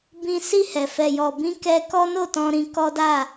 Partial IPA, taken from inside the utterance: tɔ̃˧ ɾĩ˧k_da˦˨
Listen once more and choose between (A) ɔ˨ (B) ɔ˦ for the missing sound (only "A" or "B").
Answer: B